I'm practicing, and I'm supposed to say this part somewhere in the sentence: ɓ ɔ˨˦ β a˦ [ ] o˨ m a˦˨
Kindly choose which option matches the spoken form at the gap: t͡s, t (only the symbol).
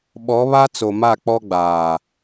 t͡s